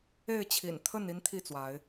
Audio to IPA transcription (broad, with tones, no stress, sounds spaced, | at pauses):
e˥˨ ɪ̯ t͡ɕʰ ḭ˨˩ n t̪ʰ ə˥˨ n i˦ n t̪ʰ i˥˨ t͡s w a˨˦ ɪ̯